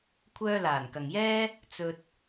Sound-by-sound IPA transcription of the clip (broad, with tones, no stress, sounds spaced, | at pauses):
kʷʰ œː˧ l aː˨˩ n k ɐ˨ ŋ j ɛː˥ | t͡s ɵ˧ t̚